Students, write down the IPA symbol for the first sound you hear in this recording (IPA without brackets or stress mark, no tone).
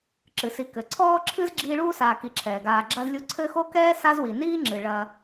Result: ǁ